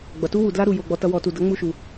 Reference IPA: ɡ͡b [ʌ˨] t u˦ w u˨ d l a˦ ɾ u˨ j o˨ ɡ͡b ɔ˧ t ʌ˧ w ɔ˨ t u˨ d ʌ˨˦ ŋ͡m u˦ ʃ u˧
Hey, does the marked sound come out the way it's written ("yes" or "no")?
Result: yes